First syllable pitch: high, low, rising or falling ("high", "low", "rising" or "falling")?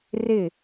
falling